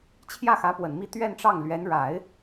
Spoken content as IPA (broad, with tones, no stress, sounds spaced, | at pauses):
t͡ɕʰ j ä˥˩ x ä˧˥ p w ə˨˩ n m i˥˧ t̪ ɥ ɛ˥˧ n ʈ͡ʂ ɑ˥˩ ŋ l ɥ ɛ˧˥ n ɻ a˨˩˦ ɪ̯